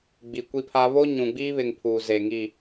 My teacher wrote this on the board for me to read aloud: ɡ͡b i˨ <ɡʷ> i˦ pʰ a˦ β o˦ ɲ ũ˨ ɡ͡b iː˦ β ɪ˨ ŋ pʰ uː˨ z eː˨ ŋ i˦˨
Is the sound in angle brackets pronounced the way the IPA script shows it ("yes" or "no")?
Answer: no